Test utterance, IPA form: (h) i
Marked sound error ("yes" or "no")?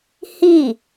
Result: no